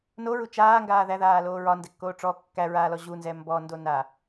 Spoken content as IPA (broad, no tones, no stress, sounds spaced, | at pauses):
n o ɹ u t͡ʃ aː ŋ ɡ aː ð æ ð aː l oː ɹ ɒ n d ɛ kː oː ʈ͡ʂ ɔ kː æ ɹ aː l ɔ ʑ u n z ɛ m b ɔ n d o n a